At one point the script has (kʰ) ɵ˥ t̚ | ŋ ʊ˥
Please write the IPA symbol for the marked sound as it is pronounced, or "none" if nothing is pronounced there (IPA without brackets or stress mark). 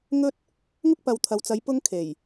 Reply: ŋ